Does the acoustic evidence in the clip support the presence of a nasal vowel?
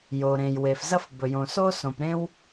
yes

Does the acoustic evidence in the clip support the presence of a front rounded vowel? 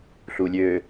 yes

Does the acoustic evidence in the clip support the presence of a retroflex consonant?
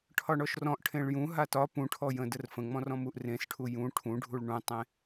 yes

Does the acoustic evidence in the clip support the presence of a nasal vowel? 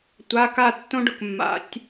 yes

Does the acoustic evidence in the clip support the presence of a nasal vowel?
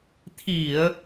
no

